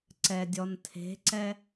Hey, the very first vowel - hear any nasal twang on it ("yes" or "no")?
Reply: no